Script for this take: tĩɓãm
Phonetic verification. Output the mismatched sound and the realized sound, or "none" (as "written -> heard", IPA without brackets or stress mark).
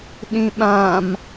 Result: t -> ɗ